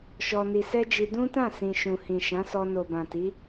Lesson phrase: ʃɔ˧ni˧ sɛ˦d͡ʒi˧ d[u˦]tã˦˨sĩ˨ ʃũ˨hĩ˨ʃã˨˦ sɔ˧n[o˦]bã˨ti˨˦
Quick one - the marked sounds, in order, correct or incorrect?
incorrect: ũ˦, incorrect: o˨

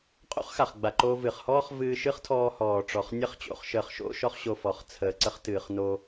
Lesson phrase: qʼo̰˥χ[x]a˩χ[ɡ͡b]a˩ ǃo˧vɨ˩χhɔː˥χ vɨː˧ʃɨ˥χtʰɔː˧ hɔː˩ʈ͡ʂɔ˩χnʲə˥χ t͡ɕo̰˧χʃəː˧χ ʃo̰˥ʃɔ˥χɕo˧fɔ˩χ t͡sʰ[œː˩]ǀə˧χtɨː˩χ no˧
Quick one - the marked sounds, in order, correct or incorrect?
correct, correct, incorrect: əː˩

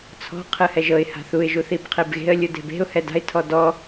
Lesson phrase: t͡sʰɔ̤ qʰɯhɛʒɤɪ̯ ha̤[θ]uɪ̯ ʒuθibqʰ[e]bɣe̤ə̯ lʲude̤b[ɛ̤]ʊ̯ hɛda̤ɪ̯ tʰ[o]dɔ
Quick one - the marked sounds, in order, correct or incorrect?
correct, correct, incorrect: e̤, incorrect: ɔ

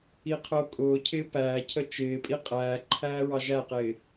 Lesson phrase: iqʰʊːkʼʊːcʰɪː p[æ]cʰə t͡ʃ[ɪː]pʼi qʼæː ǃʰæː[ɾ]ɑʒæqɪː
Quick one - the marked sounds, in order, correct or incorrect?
incorrect: æː, correct, incorrect: ɹ

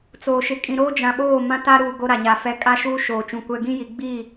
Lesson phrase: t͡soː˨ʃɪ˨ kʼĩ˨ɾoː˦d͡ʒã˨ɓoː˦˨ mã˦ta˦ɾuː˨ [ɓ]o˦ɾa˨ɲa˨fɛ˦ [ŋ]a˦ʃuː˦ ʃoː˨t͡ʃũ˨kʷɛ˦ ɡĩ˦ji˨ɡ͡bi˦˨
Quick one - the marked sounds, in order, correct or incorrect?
incorrect: ɡ, incorrect: kʼ

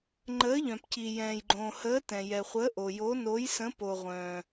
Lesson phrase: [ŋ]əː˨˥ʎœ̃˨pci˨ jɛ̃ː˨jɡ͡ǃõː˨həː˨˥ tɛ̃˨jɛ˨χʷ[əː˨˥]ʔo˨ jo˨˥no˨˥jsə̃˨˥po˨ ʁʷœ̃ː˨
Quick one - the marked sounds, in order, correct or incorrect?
incorrect: ŋ͡ǃ, correct

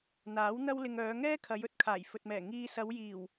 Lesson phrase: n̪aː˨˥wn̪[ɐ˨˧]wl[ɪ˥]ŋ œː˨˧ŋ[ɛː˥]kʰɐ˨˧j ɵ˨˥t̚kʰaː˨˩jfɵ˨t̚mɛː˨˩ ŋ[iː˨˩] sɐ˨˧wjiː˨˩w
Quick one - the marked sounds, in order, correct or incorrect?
incorrect: ɐ˥, incorrect: ɪ˧, correct, incorrect: iː˧

